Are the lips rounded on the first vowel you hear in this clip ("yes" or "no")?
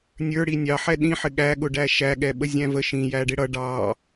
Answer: no